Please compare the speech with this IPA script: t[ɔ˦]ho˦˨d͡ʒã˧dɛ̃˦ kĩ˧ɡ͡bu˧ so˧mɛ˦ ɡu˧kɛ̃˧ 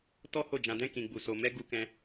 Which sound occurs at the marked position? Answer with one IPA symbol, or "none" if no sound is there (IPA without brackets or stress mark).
ɔ˦